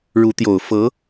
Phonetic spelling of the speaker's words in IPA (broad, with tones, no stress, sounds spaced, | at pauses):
ɻ u˧˥ t̪ j o˨˩ ʊ̯ f ɤ˧˥